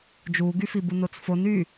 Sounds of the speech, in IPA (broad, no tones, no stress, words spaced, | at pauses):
d͡ʒuɡyfibu not͡sfon y